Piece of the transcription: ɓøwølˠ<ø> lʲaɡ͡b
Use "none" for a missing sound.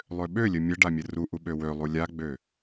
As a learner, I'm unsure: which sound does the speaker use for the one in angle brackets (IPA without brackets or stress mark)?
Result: u